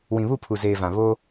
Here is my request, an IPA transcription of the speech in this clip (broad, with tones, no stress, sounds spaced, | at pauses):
w ĩ˨ β u˦˨ pʰ u˨ z eː˨ v ã˨ β o˦